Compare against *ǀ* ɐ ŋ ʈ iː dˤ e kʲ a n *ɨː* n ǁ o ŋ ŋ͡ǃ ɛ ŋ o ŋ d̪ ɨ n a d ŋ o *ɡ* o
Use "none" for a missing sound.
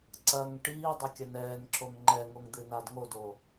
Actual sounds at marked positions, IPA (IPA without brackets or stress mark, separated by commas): ǀ, ɛː, d